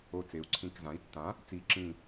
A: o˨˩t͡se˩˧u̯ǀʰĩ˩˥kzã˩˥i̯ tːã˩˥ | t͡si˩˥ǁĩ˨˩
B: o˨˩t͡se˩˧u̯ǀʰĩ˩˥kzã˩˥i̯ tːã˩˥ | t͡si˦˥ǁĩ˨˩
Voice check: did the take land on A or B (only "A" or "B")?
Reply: A